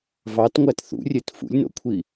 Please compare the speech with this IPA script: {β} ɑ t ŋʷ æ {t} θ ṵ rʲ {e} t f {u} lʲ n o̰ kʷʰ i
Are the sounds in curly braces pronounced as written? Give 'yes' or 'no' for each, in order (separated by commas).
no, yes, yes, no